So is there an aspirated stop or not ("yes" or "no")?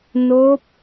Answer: no